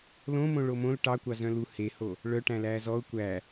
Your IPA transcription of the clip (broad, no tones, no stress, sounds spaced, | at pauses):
l õ m õ ɭ o m õ l ʈ ɑ kʷ ɑ z œ̃ l u h e h o | ɭ œ ʈ æ̃ l æː z ɔ ʊ̯ kʷ æ